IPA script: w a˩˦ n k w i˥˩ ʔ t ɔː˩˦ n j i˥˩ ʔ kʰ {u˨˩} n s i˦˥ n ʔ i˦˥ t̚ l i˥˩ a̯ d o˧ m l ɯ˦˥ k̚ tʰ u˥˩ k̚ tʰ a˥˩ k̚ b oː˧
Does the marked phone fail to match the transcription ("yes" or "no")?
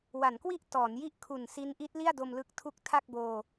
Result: no